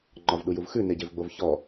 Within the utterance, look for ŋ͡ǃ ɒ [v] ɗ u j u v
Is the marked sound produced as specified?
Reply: yes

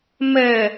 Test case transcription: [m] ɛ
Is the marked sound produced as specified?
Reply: yes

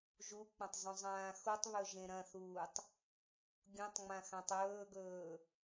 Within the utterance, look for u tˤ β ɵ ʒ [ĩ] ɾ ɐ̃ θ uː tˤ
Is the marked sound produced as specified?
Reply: no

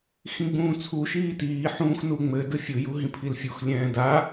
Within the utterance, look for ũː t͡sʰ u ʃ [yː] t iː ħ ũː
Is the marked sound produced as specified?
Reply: no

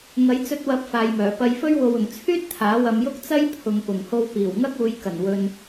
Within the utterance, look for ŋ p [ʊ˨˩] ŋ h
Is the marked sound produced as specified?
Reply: yes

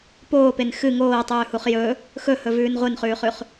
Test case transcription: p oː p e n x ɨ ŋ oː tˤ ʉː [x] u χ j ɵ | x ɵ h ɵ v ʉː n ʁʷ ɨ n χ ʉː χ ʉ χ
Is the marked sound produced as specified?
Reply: no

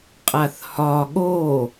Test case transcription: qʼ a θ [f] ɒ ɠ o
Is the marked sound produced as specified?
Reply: no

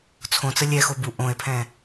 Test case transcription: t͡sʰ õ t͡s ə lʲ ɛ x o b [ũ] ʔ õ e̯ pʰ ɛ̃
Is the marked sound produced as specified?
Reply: no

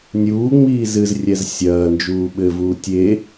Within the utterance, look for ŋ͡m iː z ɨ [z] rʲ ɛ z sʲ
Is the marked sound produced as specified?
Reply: yes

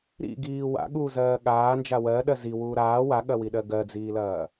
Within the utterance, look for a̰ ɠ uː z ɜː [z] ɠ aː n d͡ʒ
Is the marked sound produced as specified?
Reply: no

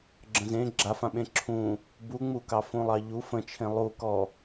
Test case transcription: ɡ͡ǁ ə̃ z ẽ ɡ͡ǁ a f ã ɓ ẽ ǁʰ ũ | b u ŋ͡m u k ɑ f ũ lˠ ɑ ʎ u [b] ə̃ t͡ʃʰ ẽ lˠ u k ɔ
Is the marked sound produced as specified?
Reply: no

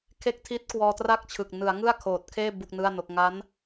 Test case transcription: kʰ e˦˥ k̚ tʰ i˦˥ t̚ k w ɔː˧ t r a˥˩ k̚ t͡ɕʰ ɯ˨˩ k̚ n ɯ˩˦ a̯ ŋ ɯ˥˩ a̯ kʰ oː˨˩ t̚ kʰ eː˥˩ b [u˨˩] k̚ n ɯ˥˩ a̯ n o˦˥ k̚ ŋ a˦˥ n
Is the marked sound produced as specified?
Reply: no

